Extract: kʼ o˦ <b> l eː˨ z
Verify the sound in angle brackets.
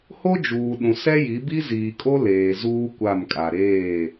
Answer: incorrect: none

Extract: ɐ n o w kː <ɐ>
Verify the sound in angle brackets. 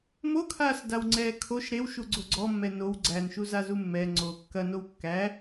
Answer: incorrect: æ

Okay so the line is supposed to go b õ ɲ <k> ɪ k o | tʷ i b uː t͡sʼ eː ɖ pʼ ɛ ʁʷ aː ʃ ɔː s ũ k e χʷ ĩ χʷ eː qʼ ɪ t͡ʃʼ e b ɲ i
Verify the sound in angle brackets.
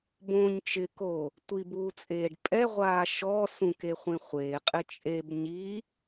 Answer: incorrect: t͡ʃ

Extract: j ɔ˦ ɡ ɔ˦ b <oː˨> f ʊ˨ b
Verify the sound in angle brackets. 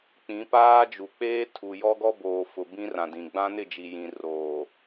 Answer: correct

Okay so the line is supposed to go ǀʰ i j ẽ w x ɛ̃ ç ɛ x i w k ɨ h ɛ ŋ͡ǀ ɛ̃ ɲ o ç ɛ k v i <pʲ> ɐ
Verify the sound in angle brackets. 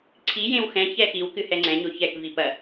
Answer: incorrect: p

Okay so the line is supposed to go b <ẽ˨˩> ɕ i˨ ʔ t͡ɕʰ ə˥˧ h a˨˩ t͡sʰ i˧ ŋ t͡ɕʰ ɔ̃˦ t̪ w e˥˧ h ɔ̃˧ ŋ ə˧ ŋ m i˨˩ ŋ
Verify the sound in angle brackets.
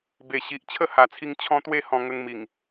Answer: incorrect: e˨˩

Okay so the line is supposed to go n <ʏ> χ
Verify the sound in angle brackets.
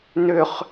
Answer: correct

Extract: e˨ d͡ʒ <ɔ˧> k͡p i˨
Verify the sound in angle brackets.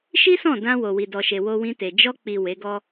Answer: correct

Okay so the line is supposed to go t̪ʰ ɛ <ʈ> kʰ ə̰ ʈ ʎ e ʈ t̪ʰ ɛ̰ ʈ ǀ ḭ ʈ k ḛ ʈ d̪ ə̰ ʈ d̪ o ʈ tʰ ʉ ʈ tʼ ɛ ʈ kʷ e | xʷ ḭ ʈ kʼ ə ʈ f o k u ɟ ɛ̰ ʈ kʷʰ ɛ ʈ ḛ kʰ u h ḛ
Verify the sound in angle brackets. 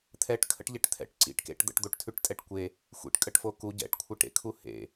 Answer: correct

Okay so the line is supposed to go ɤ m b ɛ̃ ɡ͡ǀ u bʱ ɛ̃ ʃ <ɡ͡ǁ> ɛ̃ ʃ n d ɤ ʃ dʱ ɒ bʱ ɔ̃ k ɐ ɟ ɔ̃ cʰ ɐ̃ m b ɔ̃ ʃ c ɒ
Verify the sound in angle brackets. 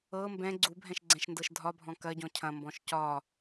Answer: incorrect: ɡ͡ǀ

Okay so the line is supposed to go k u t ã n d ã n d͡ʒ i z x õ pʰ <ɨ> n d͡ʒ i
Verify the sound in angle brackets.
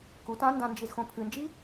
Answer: correct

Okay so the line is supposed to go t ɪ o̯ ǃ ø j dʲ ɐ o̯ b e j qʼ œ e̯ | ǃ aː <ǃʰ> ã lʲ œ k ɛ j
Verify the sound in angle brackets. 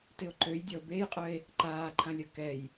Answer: correct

